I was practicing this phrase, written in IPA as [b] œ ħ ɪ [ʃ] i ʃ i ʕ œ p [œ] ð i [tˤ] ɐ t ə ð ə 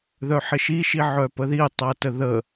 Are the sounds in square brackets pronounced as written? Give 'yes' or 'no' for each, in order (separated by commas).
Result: no, yes, no, yes